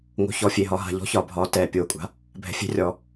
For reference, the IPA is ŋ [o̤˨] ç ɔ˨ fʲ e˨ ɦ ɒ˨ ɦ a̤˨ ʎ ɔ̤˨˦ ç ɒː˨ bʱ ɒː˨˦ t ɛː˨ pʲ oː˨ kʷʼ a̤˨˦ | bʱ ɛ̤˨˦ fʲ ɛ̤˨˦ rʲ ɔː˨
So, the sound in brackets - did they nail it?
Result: yes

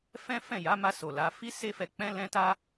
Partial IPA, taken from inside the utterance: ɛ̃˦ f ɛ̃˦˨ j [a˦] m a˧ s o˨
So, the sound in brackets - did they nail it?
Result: no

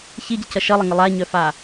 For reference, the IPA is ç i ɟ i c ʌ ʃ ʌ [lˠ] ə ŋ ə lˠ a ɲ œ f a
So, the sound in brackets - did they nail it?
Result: yes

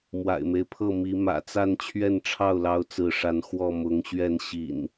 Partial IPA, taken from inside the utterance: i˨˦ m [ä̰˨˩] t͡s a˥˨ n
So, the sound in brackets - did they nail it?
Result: yes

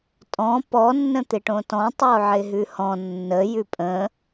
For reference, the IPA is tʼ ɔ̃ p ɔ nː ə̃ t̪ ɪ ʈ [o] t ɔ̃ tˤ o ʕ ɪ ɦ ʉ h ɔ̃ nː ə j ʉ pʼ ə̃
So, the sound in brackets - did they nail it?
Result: no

